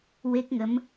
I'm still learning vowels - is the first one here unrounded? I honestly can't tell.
yes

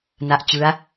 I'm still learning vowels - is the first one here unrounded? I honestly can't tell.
yes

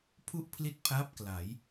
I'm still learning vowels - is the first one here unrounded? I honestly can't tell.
no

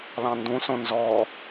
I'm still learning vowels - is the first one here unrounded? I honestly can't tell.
yes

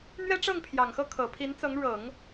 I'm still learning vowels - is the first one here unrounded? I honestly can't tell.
yes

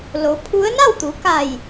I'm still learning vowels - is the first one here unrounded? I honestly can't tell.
no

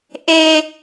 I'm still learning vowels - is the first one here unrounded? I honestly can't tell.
yes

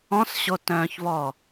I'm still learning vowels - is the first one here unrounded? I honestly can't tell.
no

